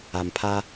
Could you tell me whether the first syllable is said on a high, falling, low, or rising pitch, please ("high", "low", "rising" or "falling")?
low